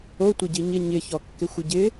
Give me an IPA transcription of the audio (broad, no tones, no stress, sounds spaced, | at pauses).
o tʷ ɪ ɟ i ɲ ɪ ɲ ɪ ç ɔ kː ɪ xʷ ɨ ɟ ɪ